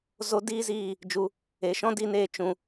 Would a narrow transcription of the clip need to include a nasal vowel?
yes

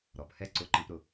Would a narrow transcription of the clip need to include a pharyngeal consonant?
no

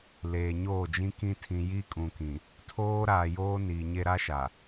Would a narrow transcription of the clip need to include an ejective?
yes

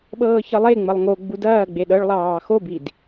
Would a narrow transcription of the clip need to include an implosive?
yes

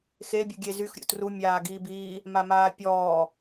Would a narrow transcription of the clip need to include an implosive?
no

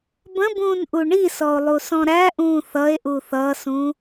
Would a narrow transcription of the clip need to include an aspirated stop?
no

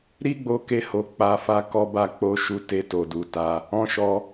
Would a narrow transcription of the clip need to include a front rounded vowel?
no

